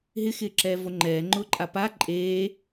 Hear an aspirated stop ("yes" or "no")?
no